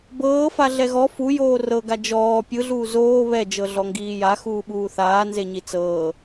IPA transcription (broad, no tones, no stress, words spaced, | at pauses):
bɤːfa ɮɛɣɔ fu joːrɤɡa d͡ʒɔː pʲɯɮuː zoː βɛd͡ʒɤ ɮɔŋɡiːja xuːɓuːθaːnze ɲit͡sɤː